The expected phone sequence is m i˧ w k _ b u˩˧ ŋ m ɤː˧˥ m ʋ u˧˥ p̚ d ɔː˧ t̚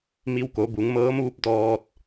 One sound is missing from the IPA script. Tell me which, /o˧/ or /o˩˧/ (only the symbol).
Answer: o˩˧